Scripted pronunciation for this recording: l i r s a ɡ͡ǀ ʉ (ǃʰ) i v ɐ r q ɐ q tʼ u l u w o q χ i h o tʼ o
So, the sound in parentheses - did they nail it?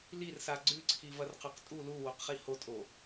no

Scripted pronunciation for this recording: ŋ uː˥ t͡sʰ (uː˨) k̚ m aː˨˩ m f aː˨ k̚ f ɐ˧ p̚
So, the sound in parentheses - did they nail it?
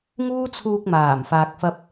no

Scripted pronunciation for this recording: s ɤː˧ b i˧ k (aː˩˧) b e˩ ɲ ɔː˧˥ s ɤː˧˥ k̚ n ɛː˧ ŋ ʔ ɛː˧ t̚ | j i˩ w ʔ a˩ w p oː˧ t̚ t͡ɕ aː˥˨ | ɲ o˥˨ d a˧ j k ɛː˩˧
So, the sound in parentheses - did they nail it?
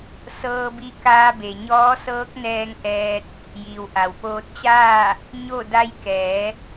no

